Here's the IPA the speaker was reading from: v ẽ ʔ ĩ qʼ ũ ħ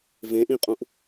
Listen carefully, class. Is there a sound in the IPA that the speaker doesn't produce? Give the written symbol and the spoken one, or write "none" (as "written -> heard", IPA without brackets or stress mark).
ħ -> ʔ